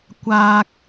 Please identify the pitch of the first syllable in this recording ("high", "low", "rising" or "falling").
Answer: low